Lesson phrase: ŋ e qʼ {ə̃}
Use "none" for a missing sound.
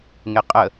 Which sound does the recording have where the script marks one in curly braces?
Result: ə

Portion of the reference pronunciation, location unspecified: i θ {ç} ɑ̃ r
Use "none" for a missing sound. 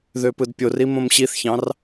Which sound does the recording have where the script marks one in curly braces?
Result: ç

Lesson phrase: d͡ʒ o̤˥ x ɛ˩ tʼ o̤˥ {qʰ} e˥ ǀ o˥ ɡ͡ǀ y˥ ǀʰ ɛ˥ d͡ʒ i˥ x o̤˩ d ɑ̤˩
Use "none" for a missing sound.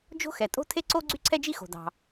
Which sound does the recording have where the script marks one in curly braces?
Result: tʰ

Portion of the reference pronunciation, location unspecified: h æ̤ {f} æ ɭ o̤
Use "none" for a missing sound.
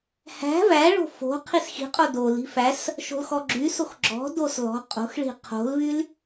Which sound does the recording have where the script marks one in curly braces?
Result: v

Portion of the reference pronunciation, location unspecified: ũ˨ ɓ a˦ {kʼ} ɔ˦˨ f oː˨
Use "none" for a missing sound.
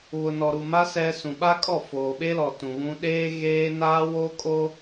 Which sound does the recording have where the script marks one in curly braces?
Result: kʼ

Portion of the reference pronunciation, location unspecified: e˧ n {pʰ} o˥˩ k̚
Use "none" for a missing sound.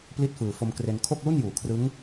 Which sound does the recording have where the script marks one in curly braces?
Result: kʰ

